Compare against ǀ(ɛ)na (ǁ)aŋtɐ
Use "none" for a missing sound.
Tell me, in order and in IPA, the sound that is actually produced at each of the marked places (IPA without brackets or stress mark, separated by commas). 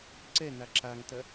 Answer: ɛ, ǁ